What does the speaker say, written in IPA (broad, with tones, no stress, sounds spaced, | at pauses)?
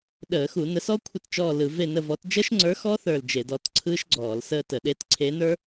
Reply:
ɗ əː˧˩˧ x u˧˩˧ n ə˨˥ s ɔ˦˥ kʷʰ ɪ˦˨ t t͡ʃ ɔː˦˨ l ɯ˧˩˧ v e˦˨ n ə˦˨ v ɔ˨˥ t d͡ʒ əː˦˥ ʃ ŋ͡ǀ ə˞˨˥ x ɔ˦˥ θ ə˞˦˨ l d͡ʒ e˧˩˧ d ɔ˨˥ t ǀʰ ɯː˦˥ ʃ ɡ͡ǀ ɔː˧˩˧ l s əː˦˨ t ə˧˩˧ ɗ eː˨˥ t ǀʰ eː˨˥ n ə˞˨˥